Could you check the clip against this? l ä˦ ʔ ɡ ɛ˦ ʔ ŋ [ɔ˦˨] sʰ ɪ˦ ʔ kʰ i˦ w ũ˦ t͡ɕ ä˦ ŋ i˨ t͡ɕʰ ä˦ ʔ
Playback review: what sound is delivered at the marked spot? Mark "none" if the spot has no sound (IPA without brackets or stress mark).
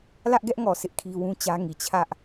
ɔ˨